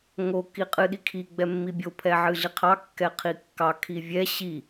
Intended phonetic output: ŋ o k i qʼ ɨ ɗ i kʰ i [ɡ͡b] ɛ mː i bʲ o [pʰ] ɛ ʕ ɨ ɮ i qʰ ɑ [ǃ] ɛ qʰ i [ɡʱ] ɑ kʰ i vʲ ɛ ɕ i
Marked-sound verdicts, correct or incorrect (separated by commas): correct, correct, incorrect, incorrect